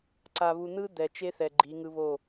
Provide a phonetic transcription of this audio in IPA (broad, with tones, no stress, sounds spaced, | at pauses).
ǀ a˨ β u˨ n̪ ɯ˦ d̪ ɛ˨ t͡ʃ e˦ θ ɛ˨ ɡ͡ǃ i˨˦ ŋ ɯ˦ β o˦˨